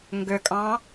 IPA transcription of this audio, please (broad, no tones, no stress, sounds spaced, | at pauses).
ŋ ɡ ʏ kʼ ɑ̃